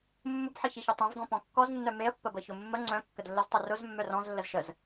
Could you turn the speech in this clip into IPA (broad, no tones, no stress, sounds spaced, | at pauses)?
mː ʊ b ħ ə ç i ç œ tˤ œ̃ v ɡ ɔ̃ p ɔ̃ kː ɔ z nː œ m e ə̯ pː ə b ə ç ʊ mː ə ŋ͡ǀ œ̃ kː ə d lː ə z tˤ ʊ r ʊ z mː œ r ɔ̃ z lː ə z ʃ ə z